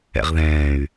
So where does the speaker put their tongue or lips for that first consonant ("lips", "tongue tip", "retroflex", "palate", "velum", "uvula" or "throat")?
uvula